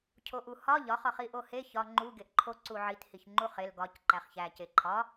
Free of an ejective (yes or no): yes